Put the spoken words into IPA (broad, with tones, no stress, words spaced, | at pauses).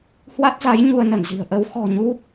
hwa˦˥t̚za˨˦j ɲu˧ə̯nə˧˩nzi̤˨˩ə̯ ʔə˨˦w xɔ̤˨˩ɲu˦˥p̚